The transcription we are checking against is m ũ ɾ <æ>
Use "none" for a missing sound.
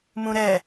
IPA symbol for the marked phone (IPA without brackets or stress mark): ɛ